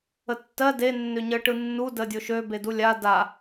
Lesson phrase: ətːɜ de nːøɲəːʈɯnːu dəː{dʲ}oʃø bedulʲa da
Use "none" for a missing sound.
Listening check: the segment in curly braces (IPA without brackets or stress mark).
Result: dʲ